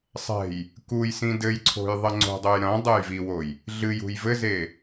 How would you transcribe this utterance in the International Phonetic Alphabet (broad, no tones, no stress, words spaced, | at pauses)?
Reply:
sˤɛ̤j | kujsĩ dɘjǀʰo̤j ðˤɐŋ͡ǀo̤dˤoj ɾɐ̃ dˤɛjviwoj | ɮɨjṳj vɘze